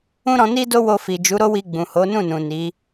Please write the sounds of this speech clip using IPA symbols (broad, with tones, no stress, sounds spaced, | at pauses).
ũ˦ ɾ ɔ̃˧ n i˦ d o˦ w o˧ f i˨ d͡ʒ u˨˦ ɾ o˦ w i˧ ɡ͡b ũ˨ h o˨˦ n ũ˦˨ n ũ˨ n i˨˦